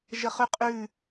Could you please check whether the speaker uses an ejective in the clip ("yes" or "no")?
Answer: yes